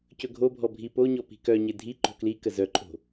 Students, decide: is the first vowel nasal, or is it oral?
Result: oral